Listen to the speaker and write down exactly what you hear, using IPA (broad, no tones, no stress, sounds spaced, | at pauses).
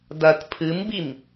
d ɐ t pʰ ɨ m b i m